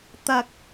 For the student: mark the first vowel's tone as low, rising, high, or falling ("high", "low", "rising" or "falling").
low